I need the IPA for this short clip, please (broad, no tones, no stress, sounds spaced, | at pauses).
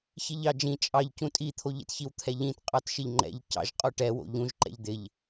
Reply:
ç i ʎ ɑ d͡ʒ ĩ t͡ʃʼ ɑ ʎ c ũ tʼ i t̪ʰ o ʎ ḭ t ç i w t̪ʰ ɛ ʎ ĩ t qʼ ɑ t ʃ ɪ ʎ ŋ͡ǃ ɛ̰ ʎ c ɑ̰ ʒ qʼ o ʈ ɛ w o̰ ʎ ũ ʒ ǃ ɛ̰ ʎ d̪ ɪ ʎ